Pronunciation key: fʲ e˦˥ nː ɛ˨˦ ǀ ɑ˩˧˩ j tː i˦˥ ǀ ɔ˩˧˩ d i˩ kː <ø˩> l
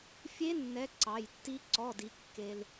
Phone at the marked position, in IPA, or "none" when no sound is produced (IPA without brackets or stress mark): e˩